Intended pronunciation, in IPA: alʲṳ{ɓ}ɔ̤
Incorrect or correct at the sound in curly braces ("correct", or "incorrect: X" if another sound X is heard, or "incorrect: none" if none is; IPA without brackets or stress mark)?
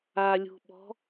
correct